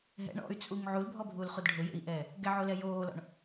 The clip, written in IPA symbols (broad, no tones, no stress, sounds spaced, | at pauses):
ɦ ɛ̰ ɳ ɔ̰ y̯ t͡sʼ u ŋ ʕ u l bʱ ɔ bʱ uː l χ u d ɖʱ ʊ j ḛ i̯ ʔ ɛː | ɡ ɛ ʕ o l ɛ j oː l ɔ̰ ɳ